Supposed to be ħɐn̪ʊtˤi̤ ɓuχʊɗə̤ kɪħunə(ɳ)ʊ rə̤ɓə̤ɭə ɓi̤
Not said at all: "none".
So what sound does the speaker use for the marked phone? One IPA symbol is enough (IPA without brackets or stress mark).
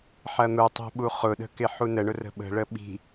ɳ